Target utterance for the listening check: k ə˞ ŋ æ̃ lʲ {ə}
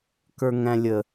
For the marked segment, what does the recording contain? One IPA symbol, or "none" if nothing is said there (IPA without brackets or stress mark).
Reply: ə